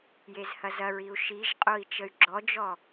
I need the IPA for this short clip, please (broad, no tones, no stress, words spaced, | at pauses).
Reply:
jezhɐzɐɹiu̯ ʃiʒqʼoi̯ t͡ʃəy̯ɡ͡ǁɔd͡ʒɔ